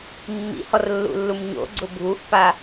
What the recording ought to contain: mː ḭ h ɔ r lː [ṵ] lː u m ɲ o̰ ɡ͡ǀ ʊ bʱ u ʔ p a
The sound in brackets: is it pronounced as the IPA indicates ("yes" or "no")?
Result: yes